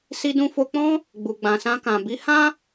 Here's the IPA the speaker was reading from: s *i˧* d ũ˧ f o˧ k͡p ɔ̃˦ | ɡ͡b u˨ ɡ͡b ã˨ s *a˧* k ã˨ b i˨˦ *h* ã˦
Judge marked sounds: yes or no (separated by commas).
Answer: yes, no, yes